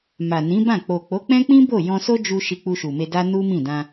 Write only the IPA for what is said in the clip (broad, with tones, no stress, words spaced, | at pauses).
ma˨nĩ˨˦bã˦˨ k͡po˨k͡po˨˦k͡pɛ̃˦ k͡pĩ˦ bo˦˨jɔ̃˧so˦ d͡ʒu˧ ʃi˧k͡pu˧ʃu˨me˧ da˦nu˦mĩ˦˨ dã˧